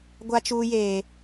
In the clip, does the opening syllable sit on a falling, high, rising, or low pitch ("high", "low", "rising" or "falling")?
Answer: high